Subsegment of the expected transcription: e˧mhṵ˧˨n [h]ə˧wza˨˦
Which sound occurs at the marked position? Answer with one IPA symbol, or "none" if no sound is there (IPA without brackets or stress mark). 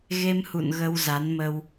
ɣ